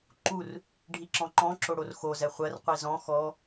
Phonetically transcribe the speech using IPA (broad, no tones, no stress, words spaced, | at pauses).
ǃur | ɖʱiǁɔ̃ǃɔ̃ ǁoɽorxo zɛχʷɜr qʷizɔ̃ xɔ